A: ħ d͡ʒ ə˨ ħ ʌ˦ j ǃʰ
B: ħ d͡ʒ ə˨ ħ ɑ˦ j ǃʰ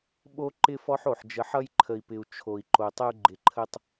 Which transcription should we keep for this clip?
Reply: A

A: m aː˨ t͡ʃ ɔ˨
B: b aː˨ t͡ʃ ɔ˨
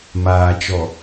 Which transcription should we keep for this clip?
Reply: A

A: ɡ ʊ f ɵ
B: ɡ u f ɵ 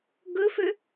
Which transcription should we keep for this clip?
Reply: A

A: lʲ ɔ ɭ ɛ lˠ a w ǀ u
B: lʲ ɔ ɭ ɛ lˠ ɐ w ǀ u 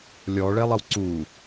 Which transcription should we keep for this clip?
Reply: B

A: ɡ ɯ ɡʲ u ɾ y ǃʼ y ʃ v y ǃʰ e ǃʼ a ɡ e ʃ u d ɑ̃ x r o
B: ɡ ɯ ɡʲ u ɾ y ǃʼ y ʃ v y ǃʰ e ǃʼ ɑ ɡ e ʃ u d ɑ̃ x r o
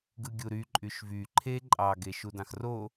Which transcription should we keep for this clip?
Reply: B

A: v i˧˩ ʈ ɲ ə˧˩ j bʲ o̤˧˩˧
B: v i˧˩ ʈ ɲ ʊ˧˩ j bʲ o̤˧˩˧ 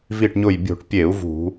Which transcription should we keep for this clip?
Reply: B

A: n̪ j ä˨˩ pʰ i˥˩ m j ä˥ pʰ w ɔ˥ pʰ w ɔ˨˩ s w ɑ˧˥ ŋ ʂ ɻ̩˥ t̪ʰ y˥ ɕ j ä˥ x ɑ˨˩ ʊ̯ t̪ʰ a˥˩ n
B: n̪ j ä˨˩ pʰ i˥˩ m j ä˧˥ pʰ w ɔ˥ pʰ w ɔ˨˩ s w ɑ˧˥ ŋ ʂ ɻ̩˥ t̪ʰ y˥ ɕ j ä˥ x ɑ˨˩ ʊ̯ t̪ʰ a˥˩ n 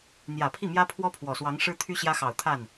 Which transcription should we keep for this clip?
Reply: A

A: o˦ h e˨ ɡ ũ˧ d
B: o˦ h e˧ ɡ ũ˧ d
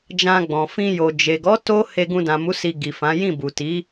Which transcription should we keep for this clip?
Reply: B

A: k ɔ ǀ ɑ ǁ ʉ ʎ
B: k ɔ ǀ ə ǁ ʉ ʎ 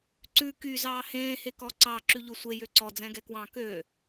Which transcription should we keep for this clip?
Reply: A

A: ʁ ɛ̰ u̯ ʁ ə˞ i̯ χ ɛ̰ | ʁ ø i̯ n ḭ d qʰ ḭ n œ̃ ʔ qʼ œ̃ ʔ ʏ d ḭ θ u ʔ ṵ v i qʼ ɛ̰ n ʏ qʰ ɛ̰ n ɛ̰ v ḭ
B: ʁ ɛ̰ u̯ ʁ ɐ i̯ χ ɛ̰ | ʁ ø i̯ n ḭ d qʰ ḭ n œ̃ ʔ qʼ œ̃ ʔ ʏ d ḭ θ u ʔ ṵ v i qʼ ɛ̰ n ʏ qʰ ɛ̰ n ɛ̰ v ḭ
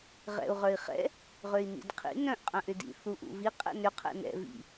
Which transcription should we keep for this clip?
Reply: A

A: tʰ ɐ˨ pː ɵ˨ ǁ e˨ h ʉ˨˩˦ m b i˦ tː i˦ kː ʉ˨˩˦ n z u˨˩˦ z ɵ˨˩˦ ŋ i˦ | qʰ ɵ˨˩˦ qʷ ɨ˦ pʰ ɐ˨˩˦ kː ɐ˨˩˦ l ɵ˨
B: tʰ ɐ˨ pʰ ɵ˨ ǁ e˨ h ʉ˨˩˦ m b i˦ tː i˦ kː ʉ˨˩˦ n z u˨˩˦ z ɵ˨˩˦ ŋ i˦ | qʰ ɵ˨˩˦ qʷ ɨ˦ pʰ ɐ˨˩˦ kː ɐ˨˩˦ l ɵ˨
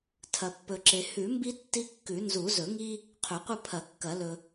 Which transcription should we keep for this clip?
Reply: A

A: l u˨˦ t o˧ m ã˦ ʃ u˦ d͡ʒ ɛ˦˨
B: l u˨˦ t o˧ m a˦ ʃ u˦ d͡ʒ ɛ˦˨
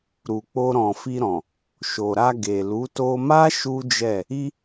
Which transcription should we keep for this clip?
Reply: B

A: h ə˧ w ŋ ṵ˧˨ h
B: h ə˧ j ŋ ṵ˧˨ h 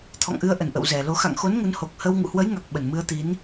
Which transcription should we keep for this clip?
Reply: A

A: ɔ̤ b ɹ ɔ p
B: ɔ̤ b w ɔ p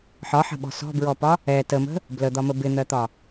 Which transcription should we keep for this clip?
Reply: A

